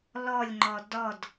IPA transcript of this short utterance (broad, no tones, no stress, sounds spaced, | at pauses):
l ɔ lʲ ŋ͡ǃ ɔ d ɔ d